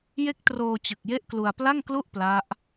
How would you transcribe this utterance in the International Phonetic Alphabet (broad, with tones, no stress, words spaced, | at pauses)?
je˦˥k̚troː˧t͡ɕɯ˨˩k̚ je˦˥ʔklu˧a̯pla˥˩ŋklu˥˩ʔ pla˦˥ʔ